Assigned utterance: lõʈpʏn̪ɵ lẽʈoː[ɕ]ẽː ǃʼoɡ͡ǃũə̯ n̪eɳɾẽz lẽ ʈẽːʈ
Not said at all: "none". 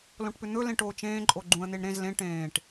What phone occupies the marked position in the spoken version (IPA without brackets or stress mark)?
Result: t͡ʃ